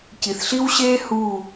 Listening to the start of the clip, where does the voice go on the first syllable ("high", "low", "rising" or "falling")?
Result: low